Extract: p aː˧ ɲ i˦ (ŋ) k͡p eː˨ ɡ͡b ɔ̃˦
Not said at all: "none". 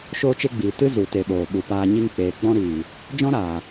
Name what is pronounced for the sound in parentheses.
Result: ŋ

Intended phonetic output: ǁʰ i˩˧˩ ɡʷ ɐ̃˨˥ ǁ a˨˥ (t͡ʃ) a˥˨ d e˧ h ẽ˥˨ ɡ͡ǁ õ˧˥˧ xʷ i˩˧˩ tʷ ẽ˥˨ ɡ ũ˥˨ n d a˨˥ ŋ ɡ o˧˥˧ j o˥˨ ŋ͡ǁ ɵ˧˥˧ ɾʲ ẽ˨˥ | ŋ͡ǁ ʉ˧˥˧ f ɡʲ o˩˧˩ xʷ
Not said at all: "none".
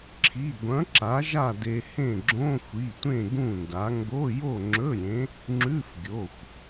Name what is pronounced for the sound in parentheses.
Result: ʒ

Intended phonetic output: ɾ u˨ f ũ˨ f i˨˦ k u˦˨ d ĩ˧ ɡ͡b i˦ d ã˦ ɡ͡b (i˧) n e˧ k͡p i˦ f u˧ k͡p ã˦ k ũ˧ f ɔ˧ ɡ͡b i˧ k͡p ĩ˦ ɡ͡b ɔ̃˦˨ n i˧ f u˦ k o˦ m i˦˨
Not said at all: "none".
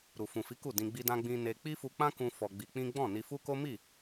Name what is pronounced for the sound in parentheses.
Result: ĩ˧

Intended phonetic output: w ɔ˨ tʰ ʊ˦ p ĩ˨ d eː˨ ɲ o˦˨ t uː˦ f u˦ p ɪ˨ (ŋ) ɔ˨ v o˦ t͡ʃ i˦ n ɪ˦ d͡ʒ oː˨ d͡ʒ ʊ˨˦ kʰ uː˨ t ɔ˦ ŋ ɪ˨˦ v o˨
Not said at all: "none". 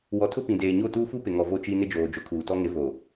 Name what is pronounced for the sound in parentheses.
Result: ŋ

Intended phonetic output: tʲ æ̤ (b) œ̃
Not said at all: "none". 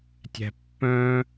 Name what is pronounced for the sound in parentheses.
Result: pː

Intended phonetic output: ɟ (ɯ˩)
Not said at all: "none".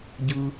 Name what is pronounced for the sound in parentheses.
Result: ɯ˩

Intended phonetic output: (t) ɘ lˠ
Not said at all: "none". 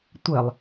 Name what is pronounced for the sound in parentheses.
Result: tʷ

